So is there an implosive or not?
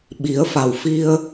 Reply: yes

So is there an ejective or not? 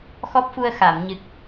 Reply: no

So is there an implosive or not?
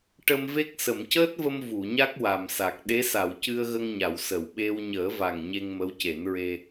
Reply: yes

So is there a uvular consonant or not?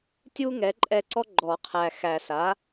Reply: yes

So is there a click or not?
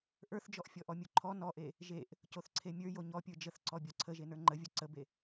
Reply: yes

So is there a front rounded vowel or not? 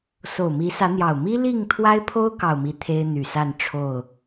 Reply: yes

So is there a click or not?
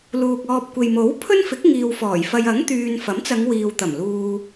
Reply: no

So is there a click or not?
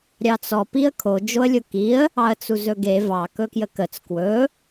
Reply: no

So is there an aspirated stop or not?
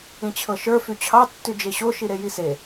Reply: yes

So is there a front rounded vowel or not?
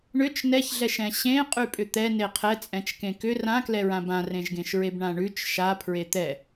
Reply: yes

